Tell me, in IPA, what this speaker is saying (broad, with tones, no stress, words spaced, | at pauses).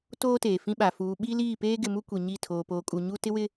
toː˦teː˨fĩ˦ɓa˨ fuː˨ɓi˦ liː˦˨peː˦ɡɪ˨mu˦ kʷi˨ɲi˦˨ tʰoː˨poː˨kʼu˨ ɲu˦ tɪ˦ wɪ˦